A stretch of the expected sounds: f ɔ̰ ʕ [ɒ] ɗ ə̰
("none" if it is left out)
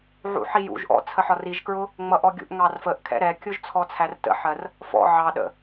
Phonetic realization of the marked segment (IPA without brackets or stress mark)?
ɑ